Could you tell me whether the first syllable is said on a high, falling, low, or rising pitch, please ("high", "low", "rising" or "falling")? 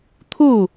falling